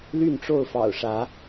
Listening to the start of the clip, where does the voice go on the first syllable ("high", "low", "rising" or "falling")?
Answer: falling